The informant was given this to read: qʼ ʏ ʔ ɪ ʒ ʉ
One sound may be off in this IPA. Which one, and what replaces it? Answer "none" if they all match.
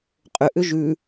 ɪ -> ʏ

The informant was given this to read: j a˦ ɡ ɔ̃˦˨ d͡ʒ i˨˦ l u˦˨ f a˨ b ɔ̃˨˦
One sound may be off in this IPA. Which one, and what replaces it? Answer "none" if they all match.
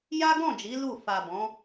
none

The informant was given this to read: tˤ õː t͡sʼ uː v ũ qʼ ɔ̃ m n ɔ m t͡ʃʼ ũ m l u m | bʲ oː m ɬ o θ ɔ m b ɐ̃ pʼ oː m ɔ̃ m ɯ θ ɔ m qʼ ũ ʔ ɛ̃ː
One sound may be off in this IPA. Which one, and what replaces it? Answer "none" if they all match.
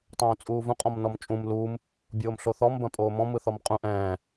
none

